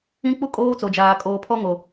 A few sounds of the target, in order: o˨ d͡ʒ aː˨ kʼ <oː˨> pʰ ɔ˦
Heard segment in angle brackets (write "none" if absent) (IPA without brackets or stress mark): oː˨